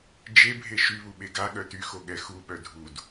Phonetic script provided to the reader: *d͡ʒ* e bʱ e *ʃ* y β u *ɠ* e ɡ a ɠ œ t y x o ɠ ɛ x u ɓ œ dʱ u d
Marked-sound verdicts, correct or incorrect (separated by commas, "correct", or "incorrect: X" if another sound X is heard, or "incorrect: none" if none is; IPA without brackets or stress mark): correct, correct, incorrect: ɓ